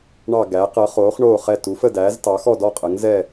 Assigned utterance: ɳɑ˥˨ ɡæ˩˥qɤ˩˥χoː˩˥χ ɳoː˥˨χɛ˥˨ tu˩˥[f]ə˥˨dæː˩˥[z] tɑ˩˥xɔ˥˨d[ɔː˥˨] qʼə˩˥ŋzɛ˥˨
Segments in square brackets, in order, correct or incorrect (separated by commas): correct, correct, incorrect